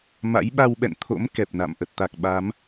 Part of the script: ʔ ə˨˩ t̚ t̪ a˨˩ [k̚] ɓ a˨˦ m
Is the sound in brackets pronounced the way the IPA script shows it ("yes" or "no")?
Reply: yes